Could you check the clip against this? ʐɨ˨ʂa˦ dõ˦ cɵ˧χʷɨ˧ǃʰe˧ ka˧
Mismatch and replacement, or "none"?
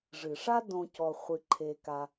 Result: ɵ˧ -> ɔ˧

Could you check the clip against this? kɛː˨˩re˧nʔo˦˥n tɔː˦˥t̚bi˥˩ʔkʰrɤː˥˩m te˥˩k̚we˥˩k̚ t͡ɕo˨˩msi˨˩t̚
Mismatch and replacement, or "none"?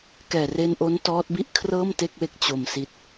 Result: none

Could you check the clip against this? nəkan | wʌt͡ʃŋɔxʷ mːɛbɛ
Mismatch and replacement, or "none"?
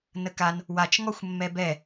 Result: ʌ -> a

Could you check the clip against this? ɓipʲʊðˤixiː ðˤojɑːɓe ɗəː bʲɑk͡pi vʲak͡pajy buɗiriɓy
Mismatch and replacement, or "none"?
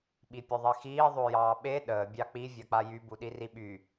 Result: none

